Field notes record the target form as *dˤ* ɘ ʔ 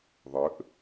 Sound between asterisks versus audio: incorrect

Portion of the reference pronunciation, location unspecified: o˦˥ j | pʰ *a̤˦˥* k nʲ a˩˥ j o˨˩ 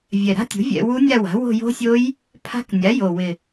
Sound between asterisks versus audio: correct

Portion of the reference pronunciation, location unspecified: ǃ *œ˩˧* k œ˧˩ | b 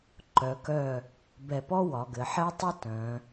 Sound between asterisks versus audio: correct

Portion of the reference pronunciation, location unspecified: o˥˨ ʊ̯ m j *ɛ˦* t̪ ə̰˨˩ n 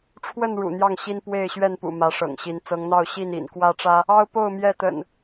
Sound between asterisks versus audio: incorrect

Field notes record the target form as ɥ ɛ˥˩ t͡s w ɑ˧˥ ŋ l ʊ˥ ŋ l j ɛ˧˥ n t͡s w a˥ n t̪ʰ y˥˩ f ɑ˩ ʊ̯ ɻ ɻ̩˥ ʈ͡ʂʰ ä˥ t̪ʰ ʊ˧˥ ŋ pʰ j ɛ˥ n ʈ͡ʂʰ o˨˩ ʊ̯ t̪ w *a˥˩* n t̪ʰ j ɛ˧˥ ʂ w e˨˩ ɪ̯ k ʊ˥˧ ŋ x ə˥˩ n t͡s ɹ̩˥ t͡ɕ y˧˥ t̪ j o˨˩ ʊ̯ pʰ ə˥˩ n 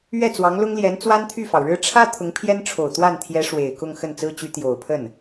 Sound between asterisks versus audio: correct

